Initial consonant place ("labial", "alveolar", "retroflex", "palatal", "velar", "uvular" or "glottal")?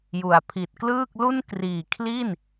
palatal